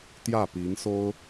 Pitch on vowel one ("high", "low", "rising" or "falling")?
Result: falling